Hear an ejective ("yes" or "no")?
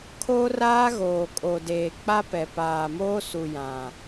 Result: yes